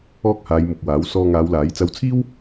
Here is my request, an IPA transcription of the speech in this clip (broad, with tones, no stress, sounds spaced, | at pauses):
ɔː˥ k̚ h aː˨˧ j m ʊ˨ k̚ w aː˨˥ w s ɔː˧ ŋ aː˨˧ w l aː˨˥ j t͡s ɐ˨˧ w t͡sʰ iː˥ w